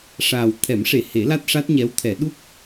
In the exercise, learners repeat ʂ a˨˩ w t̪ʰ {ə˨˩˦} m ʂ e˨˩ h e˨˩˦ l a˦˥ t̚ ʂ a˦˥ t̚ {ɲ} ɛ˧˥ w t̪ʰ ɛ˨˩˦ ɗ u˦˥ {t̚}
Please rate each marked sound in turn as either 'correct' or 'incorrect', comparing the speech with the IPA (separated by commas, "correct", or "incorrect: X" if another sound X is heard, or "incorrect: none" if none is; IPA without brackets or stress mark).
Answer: incorrect: ɛ˨˩˦, correct, incorrect: k̚